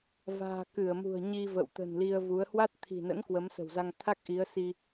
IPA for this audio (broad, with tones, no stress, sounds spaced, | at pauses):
v a̤ː˨˩ k ɨ˧˩ ə̯ m ṳ˨˩ ə̯ ɲ i˧ v ə̰˧˨ w t̪ ə̤˨˩ n l i˧ ə̯ v u˨˦ ə̯ h w a˦˥ t̚ t̪ʰ i̤˨˩ n ə̰˧˥ n k w ə˨˦ m s ə̤˨˩ w z a˧ ŋ t̪ʰ a˦˥ k̚ ʔ i˨˦ ə̯ s i˧